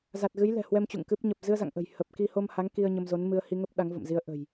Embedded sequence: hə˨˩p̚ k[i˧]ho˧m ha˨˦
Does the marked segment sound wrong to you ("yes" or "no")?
no